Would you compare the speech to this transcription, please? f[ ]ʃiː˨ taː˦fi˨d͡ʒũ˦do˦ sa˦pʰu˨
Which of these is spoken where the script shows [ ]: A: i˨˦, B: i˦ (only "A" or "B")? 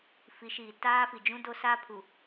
A